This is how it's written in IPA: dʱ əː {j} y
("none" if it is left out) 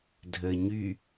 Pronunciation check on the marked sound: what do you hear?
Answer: ɲ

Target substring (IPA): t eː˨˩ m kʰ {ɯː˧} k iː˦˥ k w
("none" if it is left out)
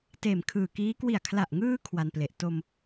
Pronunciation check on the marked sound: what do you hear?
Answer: ɯː˨˩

